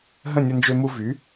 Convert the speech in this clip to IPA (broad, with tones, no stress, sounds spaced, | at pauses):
ɦ ə̃˥˨ nʲ ə˧ n d͡ʒ ø˧ m u˧ v y˩˥